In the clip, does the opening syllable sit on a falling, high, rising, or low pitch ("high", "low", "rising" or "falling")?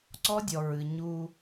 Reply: high